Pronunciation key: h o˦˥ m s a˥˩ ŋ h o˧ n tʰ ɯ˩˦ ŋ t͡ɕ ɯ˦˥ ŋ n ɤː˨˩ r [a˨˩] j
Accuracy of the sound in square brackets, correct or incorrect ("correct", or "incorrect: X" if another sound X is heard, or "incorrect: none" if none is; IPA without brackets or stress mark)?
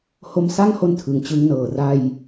incorrect: a˧